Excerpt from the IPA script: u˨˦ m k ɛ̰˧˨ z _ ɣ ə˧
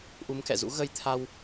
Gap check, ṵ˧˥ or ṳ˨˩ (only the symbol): ṵ˧˥